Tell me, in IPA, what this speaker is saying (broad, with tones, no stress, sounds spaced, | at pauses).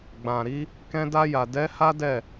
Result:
ɡ͡b ã˨ ɾ i˨˦ | k ɛ̃˧ d a˧ j a˨ d ɛ˨˦ h a˦ d ɛ˦˨